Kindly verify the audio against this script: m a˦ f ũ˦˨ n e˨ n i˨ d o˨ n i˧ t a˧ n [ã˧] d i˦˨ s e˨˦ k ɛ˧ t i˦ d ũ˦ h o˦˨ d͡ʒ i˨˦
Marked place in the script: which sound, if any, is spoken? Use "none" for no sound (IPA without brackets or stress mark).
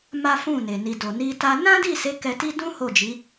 ã˦